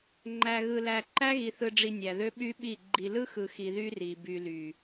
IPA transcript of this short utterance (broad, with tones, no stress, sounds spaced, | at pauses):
ŋ͡ǃ æ˨ ɣ ɯ˨ l æ˨ ǃ æ˦ ɣ i˨ θ ɯ˨ ɖ͡ʐ i˨ nʲ æ˨ ð ø˦ ɓ y˦ ɓ i˦˨ ɡ͡ǃ i˨ l ɯ˦ x ɯ˨ x i˨ ð y˦ r i˨ b y˨ l y˨